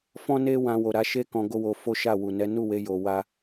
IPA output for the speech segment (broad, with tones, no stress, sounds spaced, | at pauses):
f ɔ̃˦ n e˦ w ã˧ w o˨ ɾ a˨˦ ʃ e˦ k ɔ̃˧ ɡ o˦ w o˧ f o˦ ʃ a˦˨ w u˨ n ɛ˨˦ n u˦˨ w e˨˦ j o˧ w a˦